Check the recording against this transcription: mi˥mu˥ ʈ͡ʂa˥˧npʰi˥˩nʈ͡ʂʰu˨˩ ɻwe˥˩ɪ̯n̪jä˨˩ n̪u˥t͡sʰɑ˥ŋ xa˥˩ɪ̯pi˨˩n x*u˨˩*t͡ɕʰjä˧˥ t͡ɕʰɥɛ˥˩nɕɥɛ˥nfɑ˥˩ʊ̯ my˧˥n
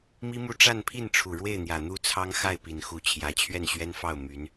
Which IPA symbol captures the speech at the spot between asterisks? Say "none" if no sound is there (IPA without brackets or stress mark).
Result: u˧˥